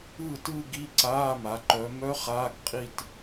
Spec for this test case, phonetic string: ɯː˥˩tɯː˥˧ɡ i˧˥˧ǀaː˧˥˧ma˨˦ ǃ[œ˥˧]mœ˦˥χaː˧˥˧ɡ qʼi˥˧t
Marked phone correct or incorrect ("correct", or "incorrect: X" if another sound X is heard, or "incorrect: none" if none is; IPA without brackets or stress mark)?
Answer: incorrect: œ˨˦